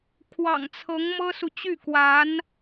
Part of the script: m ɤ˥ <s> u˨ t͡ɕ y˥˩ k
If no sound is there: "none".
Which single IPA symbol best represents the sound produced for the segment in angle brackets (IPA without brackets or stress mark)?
s